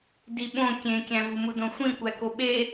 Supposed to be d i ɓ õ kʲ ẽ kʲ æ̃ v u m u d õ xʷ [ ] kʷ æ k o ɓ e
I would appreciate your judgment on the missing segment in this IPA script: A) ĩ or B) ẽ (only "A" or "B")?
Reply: A